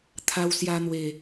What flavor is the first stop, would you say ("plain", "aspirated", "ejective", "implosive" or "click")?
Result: aspirated